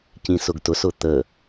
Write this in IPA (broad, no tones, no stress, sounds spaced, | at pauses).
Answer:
c ĩ s ʊ ɡ t ʊ s ʊ t̪ ə